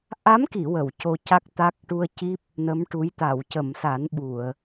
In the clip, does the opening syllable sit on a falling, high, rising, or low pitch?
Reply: rising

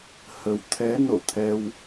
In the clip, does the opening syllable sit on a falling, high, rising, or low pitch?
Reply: low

